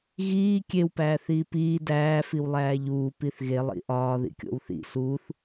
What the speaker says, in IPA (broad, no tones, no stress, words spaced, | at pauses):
ɣiː kʲewpæː θiːpiː dæːfiwlˠæː ʎuː piθɣe lˠḭʔɒː ðḭkʲo̰wθḭ suːθ